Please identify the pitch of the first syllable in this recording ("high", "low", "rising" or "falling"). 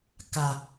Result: low